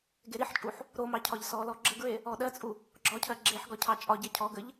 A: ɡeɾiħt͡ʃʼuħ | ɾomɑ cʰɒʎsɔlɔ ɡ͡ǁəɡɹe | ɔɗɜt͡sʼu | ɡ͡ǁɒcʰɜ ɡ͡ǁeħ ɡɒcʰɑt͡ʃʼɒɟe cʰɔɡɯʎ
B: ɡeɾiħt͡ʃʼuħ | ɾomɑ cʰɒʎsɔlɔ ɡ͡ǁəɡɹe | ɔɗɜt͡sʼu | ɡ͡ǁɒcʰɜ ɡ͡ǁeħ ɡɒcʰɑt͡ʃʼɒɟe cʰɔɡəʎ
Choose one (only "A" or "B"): B